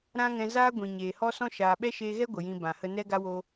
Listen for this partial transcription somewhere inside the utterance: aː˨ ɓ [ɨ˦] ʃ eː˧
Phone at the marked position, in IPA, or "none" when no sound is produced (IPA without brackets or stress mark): ɛ˦